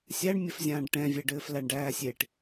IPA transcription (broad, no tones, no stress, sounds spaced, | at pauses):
sʲ æ ɳ mʲ ɘ f zʲ ãː ɖ ʈ ɛ̃ vʲ ɛ ɖ ɘː f l æ ɳ ɖ æː sʲ e ʈ